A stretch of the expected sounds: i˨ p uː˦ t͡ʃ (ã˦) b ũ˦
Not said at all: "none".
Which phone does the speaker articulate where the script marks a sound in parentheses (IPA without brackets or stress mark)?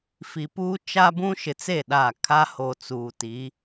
a˦